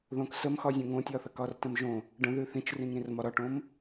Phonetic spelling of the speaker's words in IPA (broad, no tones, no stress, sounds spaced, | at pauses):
ð õ k s ə m x ɒ zʲ õ ŋ õ tʲ ɒ θ ə k ɒ r t ə̃ m ʒ õ | ɖ ə̃ ð ʉ θ ĩ t͡ʃ r ĩ ŋ ɾ ĩ r m ɒ ɾ ɒ ʈ õ m